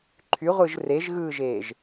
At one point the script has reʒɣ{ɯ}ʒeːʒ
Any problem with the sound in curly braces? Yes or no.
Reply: yes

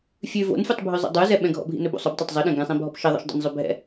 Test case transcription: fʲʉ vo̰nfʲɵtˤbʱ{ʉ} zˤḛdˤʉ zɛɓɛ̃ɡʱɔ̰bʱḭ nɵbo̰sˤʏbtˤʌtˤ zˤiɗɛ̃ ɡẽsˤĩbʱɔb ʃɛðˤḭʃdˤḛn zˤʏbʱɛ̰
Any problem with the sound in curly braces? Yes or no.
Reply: no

